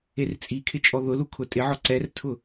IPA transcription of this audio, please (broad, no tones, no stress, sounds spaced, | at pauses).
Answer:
e r t͡sʼ i kʰ ɪ t͡ʃʼ ɔ ð ʊ l u kʰ ʊ tʼ ɪ ʕ ɔ ǀ ɛ r tʰ ʊ